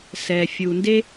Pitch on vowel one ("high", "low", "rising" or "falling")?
low